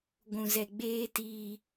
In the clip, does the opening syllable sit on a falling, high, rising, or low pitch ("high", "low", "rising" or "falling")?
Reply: low